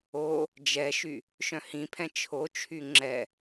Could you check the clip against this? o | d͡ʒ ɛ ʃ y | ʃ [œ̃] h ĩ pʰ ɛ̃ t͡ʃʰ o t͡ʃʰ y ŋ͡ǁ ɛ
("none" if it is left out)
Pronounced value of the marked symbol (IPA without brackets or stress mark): œ̃